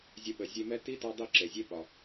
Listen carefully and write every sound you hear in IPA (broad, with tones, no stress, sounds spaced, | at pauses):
zʲ ə˧ ɓ ə˨ zʲ e˧ m ɛ˦ t i˦ t ɒ˧ dˤ i˦˨ ǁ e˨ zʲ e˦ ɓ ɒ˨